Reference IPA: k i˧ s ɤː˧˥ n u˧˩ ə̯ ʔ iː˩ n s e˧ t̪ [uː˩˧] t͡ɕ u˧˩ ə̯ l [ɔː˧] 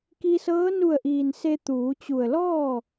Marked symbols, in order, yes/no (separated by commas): yes, no